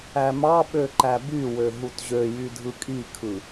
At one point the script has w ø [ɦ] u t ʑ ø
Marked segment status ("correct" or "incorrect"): correct